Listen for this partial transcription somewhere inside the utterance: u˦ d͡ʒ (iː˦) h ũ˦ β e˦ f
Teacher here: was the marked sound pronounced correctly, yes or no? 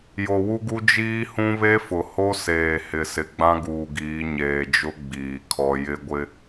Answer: yes